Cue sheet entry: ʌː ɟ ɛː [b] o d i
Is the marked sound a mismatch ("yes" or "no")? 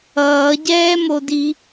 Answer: yes